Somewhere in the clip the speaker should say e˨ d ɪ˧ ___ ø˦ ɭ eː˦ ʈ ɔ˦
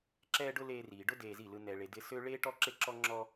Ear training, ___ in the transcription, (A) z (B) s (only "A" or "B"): B